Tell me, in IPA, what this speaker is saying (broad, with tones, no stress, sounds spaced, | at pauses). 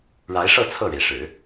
ɻ a˧˥ ɪ̯ ʂ ɤ˥˧ t͡sʰ ɤ˥˩ ɻ e˩ ɪ̯ ʂ ɻ̩˨˩˦